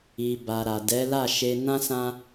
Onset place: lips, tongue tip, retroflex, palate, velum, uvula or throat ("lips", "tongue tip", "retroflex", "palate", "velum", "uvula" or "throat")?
lips